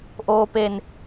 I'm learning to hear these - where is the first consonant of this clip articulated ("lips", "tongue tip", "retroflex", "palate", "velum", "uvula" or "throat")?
throat